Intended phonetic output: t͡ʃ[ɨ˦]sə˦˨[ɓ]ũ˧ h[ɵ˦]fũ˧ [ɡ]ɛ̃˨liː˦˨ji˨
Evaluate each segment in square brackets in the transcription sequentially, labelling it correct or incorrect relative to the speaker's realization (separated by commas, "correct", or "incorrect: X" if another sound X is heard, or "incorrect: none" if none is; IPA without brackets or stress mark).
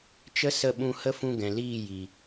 incorrect: ə˦, correct, incorrect: ə˦, correct